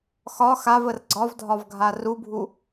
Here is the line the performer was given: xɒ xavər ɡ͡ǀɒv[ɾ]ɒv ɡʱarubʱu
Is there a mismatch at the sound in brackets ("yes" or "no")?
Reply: yes